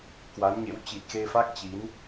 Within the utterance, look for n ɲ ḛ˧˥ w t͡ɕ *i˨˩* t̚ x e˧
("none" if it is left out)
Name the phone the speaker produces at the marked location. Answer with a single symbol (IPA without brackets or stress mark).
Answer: i˨˩